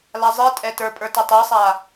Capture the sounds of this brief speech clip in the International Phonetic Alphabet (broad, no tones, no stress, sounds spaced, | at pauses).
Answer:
l a zˤ i tʼ ɛ t ə˞ pʼ ə˞ t i tˤ i sˤ a